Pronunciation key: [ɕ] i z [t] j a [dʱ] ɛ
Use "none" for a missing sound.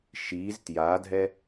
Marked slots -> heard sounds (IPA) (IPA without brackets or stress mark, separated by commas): ʃ, t, dʱ